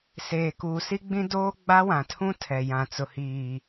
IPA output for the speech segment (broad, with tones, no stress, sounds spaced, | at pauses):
s eː˨ k uː˨ s i˦ ɡ͡b ĩ˦ d oː˦ ɡ͡b a˦ w ã˨ tʰ ũ˦ tʰ ɛ˨ j ã˨ t͡s ʊ˨ h iː˨